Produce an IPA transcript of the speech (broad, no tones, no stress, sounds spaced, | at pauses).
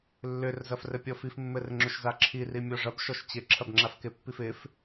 lː ʏ r z ɐ f r ɘ pʲ ɔ f i f mː ɘ r ŋ͡ǁ ʏ ʃ z a ǁʰ i r i mʲ ɔ ʐ ɐ b ʃ ɔ ʃ t͡ɕ ɪ ǁʰ ɐ b ŋ͡ǁ a f k ɪ pː i f ɪ f